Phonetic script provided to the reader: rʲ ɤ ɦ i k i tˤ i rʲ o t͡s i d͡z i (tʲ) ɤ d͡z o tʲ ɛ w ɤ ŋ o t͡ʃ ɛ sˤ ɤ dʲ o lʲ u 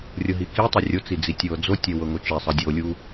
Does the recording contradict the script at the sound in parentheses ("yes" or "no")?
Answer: no